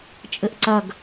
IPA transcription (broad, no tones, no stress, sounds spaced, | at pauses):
t͡ʃʼ ɘ ʔ ǀ ɐ ɡ